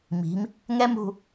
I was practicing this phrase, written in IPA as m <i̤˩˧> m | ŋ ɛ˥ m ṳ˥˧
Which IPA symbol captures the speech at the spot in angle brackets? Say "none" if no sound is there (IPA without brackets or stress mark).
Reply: i̤˩˧